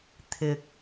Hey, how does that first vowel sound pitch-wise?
low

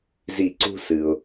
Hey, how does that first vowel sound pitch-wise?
falling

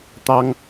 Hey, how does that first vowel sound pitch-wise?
high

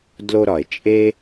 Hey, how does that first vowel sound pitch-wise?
high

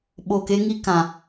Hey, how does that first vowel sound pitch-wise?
low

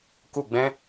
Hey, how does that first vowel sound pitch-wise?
falling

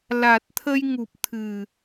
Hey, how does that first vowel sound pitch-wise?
low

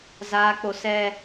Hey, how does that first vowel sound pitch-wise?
high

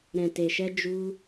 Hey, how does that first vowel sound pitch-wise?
low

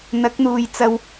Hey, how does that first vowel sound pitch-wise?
rising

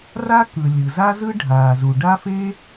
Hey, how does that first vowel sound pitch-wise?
high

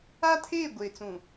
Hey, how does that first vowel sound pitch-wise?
high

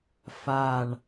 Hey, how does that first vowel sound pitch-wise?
low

